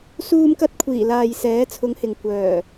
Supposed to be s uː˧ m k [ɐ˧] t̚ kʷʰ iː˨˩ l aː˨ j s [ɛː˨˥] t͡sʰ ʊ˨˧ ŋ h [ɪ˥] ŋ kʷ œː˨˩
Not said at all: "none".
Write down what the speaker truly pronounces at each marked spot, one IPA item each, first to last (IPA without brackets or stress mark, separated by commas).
ɐ˧, ɛː˨˥, ɪ˨